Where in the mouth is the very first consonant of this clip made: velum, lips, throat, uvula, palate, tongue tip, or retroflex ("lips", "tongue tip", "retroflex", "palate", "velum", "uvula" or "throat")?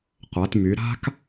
uvula